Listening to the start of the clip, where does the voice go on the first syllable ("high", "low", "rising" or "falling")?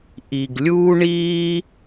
low